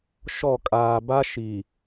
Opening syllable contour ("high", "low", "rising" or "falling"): falling